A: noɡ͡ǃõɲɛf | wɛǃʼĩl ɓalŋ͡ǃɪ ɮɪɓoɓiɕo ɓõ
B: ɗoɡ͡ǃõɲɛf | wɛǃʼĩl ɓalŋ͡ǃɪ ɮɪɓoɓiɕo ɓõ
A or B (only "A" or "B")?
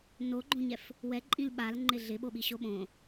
A